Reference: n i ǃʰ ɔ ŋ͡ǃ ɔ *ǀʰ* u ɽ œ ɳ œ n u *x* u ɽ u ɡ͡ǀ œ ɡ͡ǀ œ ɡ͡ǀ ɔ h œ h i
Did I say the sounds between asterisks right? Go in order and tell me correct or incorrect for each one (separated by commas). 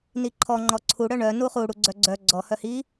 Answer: correct, incorrect